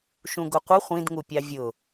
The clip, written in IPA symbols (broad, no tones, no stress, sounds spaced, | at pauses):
ʃ ũ ɡ ʊ qʷ ə χʷ ĩ d ŋ u pʲ ɑ vʲ ʊ